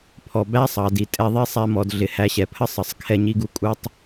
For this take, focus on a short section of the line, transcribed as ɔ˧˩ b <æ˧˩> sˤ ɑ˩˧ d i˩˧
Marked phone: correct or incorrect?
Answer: incorrect